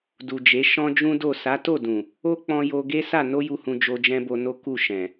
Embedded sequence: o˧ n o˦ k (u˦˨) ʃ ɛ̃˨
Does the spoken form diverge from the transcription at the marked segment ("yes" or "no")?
no